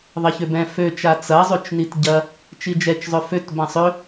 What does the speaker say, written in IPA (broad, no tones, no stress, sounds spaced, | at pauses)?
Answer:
ðˤ ɐ ç ø b ɛ̃ f ø t͡ʃ a t͡s ɐ zˤ ʉ t͡ʃ n i t ɟ ɐ | t͡ʃ i d͡ʒ ɛ t͡ʃ zˤ ø f ø t b ã sˤ ø